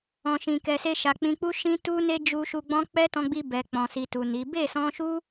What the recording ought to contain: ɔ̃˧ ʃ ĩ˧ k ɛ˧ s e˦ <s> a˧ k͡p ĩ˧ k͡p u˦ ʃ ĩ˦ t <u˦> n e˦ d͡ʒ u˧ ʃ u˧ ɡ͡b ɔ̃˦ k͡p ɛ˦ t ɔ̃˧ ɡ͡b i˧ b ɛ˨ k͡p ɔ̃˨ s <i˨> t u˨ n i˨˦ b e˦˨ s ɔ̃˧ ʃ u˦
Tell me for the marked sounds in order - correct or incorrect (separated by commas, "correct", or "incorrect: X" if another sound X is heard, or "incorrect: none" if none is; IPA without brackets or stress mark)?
incorrect: ʃ, correct, correct